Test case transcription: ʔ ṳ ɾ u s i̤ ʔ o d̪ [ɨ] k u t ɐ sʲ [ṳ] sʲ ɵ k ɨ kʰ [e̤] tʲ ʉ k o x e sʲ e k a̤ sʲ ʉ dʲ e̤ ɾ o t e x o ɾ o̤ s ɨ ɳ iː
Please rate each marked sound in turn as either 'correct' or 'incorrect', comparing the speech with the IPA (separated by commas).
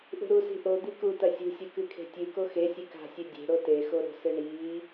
incorrect, correct, correct